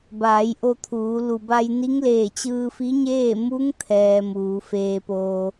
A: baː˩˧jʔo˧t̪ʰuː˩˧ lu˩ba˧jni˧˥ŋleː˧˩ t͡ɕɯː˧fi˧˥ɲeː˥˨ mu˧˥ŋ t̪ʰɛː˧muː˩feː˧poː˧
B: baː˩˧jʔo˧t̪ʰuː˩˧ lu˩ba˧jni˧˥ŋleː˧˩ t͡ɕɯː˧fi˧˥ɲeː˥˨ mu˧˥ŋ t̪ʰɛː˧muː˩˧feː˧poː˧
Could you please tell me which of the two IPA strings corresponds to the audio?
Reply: B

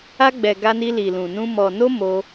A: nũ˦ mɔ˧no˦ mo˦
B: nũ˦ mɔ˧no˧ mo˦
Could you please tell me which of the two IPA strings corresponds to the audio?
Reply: A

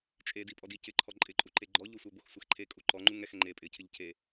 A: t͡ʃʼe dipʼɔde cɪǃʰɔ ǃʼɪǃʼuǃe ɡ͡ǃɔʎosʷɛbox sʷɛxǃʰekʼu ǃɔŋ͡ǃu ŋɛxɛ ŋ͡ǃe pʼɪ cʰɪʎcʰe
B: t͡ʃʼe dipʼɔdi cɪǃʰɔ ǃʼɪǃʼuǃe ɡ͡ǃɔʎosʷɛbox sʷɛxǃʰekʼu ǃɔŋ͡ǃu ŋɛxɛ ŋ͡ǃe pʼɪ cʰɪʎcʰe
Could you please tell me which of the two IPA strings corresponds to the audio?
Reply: B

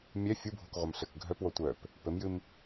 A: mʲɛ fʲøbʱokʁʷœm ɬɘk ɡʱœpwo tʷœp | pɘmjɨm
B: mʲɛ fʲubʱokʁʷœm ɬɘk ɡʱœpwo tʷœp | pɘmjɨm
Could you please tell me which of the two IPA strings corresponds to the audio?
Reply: B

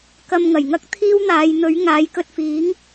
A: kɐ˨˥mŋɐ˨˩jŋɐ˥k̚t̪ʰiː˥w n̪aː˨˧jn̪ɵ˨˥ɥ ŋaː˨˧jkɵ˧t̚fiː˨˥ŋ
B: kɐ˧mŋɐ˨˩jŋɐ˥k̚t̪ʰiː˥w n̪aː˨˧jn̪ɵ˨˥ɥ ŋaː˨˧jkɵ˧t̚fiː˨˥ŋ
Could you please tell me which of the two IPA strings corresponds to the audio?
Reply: B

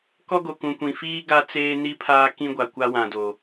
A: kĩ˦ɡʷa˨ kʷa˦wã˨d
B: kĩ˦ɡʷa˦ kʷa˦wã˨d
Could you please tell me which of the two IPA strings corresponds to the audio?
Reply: A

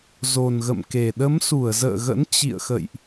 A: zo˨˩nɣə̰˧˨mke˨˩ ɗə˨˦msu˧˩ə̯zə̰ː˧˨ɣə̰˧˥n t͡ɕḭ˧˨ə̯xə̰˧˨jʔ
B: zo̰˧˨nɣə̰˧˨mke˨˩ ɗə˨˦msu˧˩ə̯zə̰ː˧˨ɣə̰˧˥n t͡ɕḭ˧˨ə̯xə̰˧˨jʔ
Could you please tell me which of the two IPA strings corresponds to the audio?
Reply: A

